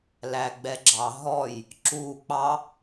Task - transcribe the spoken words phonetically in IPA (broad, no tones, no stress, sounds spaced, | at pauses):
l æ ɡ͡b ɛ ɡ͡ǁ ɑ ɦ ɔ j | ǁ u k͡p ɑ